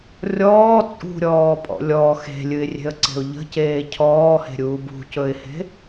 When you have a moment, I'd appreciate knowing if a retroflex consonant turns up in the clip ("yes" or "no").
no